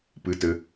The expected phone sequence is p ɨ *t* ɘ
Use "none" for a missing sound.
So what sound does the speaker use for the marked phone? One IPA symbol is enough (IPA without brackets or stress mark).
t